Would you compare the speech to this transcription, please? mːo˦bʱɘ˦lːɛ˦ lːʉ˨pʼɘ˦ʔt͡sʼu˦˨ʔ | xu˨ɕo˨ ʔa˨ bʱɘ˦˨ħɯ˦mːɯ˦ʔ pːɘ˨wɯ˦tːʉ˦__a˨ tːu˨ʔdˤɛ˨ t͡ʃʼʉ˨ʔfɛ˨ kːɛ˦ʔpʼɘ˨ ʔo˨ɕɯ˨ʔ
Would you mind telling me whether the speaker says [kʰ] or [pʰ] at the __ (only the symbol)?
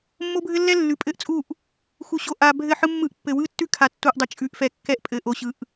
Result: kʰ